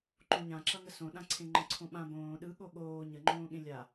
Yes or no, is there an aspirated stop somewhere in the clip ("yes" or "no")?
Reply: yes